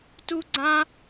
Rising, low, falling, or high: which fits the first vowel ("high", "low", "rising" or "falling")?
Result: high